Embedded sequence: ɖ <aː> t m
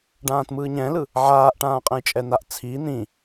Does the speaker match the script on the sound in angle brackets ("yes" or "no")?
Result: no